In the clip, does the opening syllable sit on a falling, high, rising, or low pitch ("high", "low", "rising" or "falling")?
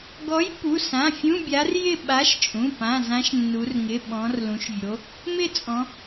rising